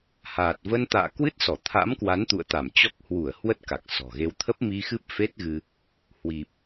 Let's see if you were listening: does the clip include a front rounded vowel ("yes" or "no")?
no